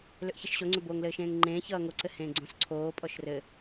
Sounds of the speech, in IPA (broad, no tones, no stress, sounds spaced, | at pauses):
l ʏ ʔ ç ʌ ʃ ɕ o ŋ͡ǀ ʏ b oː ŋ l ɘː ʃ ẽː ŋ ŋ͡ǃ ẽː ç ʌː ŋ o ǀ ɘ h ẽː ɡ͡ǀ õ s ǀʰ oː pʼ ɔ ʃ r ɘ